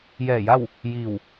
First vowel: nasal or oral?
oral